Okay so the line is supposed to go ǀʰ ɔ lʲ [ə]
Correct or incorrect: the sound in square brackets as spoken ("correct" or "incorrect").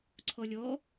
incorrect